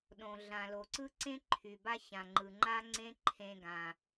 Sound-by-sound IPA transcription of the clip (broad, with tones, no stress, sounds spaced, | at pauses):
ɗ õ˩ ɮ ã˩ l o˩ ǀ ɯ˥ ǀ ẽ˥ ǃʰ y˩ b a˥ ç ã˩ ŋ͡ǃ ɯ˩ ŋ͡ǃ a˥ ŋ͡ǀ ẽ˥ ǃʰ ẽ˧ ɡ ã˩